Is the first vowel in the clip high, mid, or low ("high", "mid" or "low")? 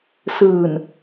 high